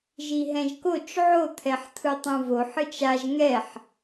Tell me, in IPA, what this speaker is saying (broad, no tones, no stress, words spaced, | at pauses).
ʒiɦɛ̃ʒkot͡ʃ ʕot̪ʰɛħt̪ʰɯtˤũ voħ ɯt͡ʃaʒ ŋɛħ